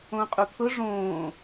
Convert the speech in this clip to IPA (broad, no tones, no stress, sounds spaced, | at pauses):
õ qʼ u t̪ʰ ʊ ʐ õː